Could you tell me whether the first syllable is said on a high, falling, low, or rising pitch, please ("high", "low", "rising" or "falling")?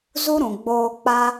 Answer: high